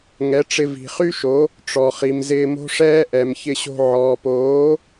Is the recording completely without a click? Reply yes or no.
yes